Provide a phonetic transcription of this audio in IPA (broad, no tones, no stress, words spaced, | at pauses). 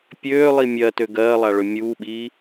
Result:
pʲøːlˠi mʲɜtø ɡɜːlˠaɭø mʲuːɓiː